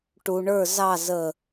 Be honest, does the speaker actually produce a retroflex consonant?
yes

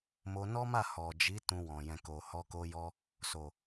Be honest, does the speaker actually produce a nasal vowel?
yes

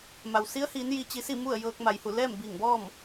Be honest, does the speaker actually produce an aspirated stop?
no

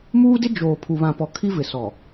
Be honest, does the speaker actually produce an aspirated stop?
yes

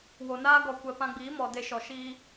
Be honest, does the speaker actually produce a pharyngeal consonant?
no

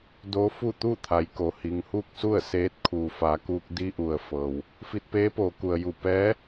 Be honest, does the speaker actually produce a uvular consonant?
no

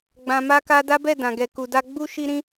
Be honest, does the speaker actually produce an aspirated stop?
no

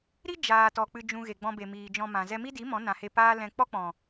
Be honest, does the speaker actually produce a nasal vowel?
yes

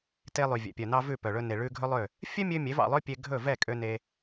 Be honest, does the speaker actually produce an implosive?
no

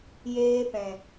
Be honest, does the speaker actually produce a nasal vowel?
yes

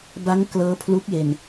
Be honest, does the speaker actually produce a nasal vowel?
no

